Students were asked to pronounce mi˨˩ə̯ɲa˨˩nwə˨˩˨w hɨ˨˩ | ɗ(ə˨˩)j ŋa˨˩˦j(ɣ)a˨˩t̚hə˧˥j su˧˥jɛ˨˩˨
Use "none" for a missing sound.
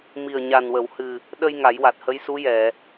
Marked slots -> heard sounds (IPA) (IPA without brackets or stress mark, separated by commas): ə˧, w